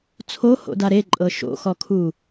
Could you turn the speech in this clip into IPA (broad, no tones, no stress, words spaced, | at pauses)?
t͡sʰoho̰da ɾeǃʼɤ ʃo̰xɔkʰu